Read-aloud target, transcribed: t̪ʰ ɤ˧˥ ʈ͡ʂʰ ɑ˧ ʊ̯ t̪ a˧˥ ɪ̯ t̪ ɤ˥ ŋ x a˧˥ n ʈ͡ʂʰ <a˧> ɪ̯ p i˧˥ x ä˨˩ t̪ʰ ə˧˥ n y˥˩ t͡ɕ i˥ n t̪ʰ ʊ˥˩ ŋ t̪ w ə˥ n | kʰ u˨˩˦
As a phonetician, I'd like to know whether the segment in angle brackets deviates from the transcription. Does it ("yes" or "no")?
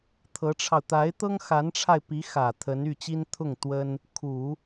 no